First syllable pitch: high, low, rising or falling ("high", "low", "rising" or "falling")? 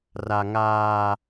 high